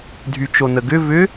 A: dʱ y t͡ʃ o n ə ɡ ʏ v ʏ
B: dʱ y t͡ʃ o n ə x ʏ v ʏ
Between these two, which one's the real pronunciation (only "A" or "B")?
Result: A